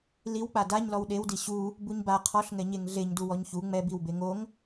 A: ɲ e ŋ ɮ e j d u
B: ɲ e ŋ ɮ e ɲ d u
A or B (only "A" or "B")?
B